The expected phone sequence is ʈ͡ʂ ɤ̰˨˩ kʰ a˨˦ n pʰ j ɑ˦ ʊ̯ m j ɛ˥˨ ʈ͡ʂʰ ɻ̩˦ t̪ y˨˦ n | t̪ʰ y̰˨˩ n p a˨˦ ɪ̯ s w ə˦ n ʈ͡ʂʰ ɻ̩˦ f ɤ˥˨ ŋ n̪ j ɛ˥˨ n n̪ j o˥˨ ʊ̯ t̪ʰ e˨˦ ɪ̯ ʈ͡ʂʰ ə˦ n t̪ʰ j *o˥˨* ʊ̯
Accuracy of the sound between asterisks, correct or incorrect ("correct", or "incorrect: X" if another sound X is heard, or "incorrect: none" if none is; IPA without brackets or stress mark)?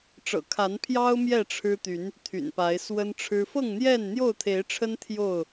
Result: correct